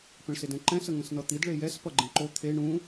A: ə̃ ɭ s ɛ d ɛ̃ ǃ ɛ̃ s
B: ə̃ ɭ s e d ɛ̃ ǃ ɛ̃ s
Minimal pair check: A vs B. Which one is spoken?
B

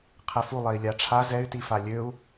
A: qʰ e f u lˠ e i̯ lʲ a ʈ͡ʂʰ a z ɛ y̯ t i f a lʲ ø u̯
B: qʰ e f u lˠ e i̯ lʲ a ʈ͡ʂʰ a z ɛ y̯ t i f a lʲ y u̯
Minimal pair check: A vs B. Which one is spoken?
A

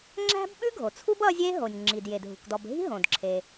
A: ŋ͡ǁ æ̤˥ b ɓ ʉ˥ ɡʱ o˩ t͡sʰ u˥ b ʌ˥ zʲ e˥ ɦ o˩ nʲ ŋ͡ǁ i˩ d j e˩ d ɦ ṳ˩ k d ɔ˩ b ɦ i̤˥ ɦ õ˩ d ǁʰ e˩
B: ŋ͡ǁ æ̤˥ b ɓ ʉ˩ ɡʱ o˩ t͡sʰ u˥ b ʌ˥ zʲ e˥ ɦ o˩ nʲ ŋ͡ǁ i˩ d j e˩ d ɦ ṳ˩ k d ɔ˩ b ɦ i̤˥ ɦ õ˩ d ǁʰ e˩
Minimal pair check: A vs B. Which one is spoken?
A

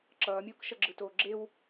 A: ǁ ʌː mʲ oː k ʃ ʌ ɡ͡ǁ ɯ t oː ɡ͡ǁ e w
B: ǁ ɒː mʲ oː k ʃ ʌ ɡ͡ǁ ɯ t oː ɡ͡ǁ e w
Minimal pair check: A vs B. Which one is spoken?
A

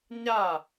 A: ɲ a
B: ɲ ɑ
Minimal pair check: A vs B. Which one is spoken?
A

